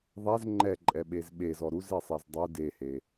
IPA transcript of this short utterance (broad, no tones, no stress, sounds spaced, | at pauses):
ðˤ ɛ z ŋ͡ǃ ɛ ǃʼ ɛ ɓ e z ɓ e z ɔ ɾ u z e sˤ ɛ z dˤ u d e h e